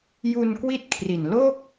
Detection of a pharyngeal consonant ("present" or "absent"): absent